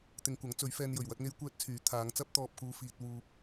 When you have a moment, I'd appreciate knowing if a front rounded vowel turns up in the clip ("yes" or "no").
yes